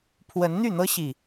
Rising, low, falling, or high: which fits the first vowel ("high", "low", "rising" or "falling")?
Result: rising